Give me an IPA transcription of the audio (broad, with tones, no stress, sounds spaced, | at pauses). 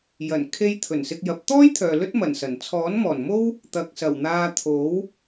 j ɐ˨˩ n kʰ e˧ j t̪ʰ ɵ˨˩ n s ɪ˧ k̚ j ɐ˨˥ p̚ t̪ ɔː˥ j t̪ʰ œː˨ l ɵ˥ t̚ m ɐ˨˩ n s ɐ˨˩ n t͡sʰ ɔː˨˥ n m ɔː˨˩ n m o˥ w | t̪ ɐ˨ k̚ s ɐ˨˩ w n̪ aː˧ t̪ʰ o˨˥ w